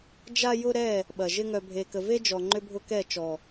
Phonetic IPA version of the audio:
d͡ʒa˦jʊ˦ɾɛ˦˨ | ɓɐ˨ʒɪ˦ ŋœ˨bʱe˨kə˨ve˦ d͡ʒɔ˨ŋ͡ǃʏ˦bʱʊ˦kɛ˦˨ t͡ʃɔ˨

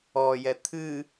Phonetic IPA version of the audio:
ɔjɛ t̪ʰɨ

